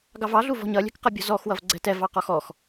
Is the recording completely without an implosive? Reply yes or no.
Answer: yes